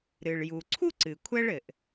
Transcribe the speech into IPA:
ɾ ɨ˩ ɭ j u˩ ǀʰ u˥ ǀ ɨ˩ kʷʰ ɛ˥ ɭ ɘ˩ ʔ

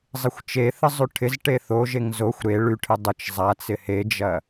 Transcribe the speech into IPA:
zˤ ɪ xʷ t͡ʃ e θ ə zˤ y ʈʰ ɪ z ʈ e θ o ʒ e ŋ z o xʷ ɾ e ɭ y ʈʰ ɪ dˤ ə t͡ʃ zˤ a t͡s ɪ h e d͡ʒ ɐ

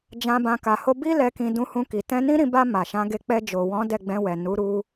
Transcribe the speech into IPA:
d͡ʒ ã˧ b ã˧ k a˨ h o˧ b i˦ l ɛ˧ k ĩ˧ d ũ˧ h ũ˧ k i˨ t ɛ̃˧ n ĩ˦ ɾ ĩ˧ b a˧ m a˨ ʃ ã˨˦ ɡ e˧ k͡p ɛ˧ d͡ʒ o˨ w ɔ̃˨˦ d ɛ˦˨ ɡ͡b ɛ̃˧ w ɛ˨ n u˨˦ ɾ u˧

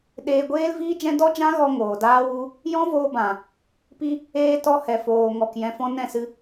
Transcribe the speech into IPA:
ɗ eː˧ ɡʷ eː˦ l v iː˦ d͡ʒ ɛ̃˦ d ɔ˦ d͡ʒ ã˦ ɣ ɔ˧ ŋ oː˨ d aː˦ w u˦ | j ɔ̃˦ v oː˧ b ã˨ | p i˦ | eː˧ t ɔ˧ h ɛ˨ f oː˨ ŋ ɔ˨ k j ɛ̃˨ f ɔ̃˧ n ɛ̃˦˨ s ɨ˧

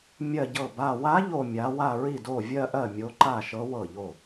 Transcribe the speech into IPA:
mʲ ɜ˥˧ ɟ ɤ˥˩ b a˥˧ w a˧˥ ʎ o˥˧ mʲ a˧˥ w a˥˧ ɹ i˥˩ d o˥˩ vʲ ɜ˥˧ ʔ ɜ˥˩ mʲ o˧˥ ǃ a˥˩ ʃ ɤ˧˥ w ɤ˥˩ ʎ o˥˩

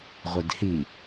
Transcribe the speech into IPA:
ʁʷ ɘ d h i

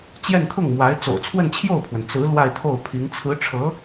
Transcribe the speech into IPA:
t͡ɕ j ɛ˥˧ n kʰ ʊ˥˩ ŋ m w a˧˥ ɪ̯ t͡s o̰˨˩ ʊ̯ t͡sʰ w ə˥˧ n t͡ɕʰ j o˥˩ ʊ̯ pʰ w ə˩ n t͡s ɹ̩˧˥ l w a˥˧ ɪ̯ t̪ʰ o˥˩ ʊ̯ pʰ i˧˥ ŋ t͡sʰ ɹ̩˧˥ ʈ͡ʂʰ ɤ˧˥

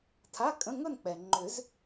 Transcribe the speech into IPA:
tʰ a˧˥˧ kʼ ə̃˧˥˧ ŋ ɵ˥˧ n k͡p ɛ˩ ŋ͡ǃ ʏ˨˩˦ z

